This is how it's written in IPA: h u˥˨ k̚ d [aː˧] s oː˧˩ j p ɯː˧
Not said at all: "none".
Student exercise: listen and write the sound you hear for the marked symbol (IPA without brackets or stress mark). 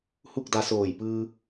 a˧